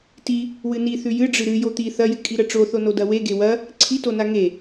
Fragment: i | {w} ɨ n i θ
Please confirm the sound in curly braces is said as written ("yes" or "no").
yes